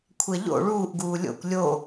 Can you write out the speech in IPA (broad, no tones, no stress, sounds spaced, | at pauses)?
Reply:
kʷʰ ɛ ʎ o̰ ɭ uː ʔ ɡ uː lʲ o̰ kʷ lʲ o